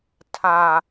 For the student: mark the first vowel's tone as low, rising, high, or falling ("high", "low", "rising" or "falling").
low